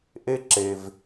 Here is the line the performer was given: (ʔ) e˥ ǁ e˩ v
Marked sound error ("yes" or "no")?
no